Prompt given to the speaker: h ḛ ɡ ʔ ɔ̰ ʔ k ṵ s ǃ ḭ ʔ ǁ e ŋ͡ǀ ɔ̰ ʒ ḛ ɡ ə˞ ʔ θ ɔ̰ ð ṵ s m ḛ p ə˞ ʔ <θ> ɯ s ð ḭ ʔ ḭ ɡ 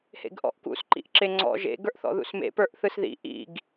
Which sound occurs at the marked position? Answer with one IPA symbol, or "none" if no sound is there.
θ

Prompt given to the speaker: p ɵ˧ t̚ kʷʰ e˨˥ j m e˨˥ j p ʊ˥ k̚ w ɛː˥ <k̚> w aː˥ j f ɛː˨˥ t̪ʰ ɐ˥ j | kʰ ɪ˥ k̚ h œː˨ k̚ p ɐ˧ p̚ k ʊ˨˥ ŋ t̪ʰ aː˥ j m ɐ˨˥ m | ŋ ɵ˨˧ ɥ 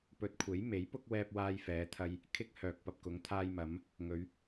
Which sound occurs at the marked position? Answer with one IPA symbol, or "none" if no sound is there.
p̚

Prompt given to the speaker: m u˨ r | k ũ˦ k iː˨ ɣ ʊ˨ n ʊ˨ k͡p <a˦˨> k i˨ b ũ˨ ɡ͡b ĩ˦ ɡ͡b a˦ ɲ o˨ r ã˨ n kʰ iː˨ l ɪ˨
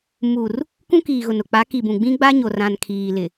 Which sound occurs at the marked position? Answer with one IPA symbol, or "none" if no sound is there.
a˨˦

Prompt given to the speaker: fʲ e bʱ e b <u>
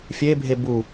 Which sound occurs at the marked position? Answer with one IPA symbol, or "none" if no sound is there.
u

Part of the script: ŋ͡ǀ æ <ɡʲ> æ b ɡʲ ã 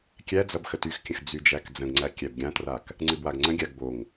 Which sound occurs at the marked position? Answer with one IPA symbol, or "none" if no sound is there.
kʲ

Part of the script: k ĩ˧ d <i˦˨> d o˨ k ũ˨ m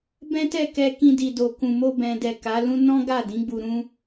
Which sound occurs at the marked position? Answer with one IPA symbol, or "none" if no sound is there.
i˨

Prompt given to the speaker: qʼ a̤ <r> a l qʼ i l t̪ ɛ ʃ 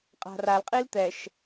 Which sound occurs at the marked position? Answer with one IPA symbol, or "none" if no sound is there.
r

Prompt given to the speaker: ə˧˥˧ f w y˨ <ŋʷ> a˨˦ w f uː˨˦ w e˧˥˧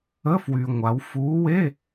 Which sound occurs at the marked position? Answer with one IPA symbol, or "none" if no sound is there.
ŋʷ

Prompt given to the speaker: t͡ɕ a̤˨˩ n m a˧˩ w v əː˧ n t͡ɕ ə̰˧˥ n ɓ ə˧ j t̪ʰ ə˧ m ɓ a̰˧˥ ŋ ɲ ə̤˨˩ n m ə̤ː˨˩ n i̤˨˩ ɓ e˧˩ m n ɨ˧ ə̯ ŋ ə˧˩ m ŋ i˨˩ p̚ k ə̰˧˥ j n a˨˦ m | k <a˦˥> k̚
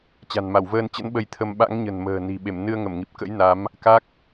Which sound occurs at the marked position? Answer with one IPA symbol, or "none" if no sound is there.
a˦˥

